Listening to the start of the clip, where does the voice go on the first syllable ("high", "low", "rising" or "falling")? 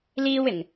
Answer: high